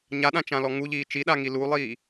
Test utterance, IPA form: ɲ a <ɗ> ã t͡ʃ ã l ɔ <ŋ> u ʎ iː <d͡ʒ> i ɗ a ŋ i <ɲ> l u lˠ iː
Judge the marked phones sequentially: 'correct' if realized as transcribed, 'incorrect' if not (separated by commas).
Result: correct, correct, incorrect, incorrect